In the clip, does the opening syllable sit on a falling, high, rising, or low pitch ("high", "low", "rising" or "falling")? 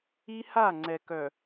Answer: high